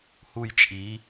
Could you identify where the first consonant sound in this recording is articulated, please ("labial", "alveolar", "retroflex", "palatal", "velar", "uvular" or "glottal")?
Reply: glottal